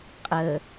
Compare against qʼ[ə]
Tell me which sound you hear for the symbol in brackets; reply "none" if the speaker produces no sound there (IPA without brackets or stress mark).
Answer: ə